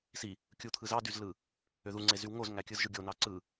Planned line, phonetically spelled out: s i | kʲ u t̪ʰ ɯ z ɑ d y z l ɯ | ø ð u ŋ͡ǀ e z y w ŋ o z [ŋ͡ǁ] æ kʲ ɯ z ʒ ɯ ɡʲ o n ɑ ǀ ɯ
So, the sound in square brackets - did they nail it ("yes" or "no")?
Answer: no